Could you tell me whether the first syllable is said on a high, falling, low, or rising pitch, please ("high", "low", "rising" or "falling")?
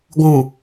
low